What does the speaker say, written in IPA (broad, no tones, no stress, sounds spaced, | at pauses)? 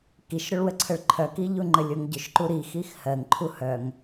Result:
k i ʃ ɾ ʏ ɭ w ə ǀʰ ə ɭ ǃʰ œ k i ʎ u ŋ͡ǃ ə lʲ o ŋ ɟ ʏ ʃ ǃ u ɾ i x i x h ɜ ŋ ǃʰ u h œ ŋ